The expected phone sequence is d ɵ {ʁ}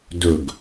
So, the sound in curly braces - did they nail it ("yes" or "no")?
no